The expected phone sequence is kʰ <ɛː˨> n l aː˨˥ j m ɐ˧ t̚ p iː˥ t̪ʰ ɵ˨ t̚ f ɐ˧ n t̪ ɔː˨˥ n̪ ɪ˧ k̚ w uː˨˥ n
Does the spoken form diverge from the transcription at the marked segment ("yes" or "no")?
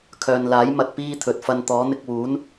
yes